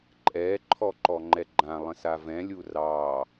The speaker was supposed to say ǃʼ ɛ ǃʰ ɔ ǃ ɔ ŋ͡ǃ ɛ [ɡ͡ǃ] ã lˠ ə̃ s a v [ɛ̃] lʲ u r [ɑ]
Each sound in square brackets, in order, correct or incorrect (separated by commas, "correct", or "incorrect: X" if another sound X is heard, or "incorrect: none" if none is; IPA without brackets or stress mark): correct, correct, correct